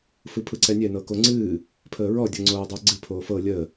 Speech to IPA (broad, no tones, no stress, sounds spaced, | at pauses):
f ɯ pʰ ɯ ǀ ɛ nʲ ɛ n ɤ k o ŋ͡ǀ ɨː | pʰ əː ɹ ɔ dʲ ɤ ŋ͡ǀ oː dˤ əː ɡ͡ǀ ɨ pʰ oː f ɤ lʲ ə